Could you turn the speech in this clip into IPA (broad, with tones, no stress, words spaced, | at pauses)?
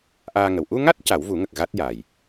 ʔaː˧ŋə˨˩w ʔu˧ŋa˦˥t̚ ca˨˩˦wvu˨˩˦ŋə˨˩k̚ ɣa˦˥t̚ jaː˨˩j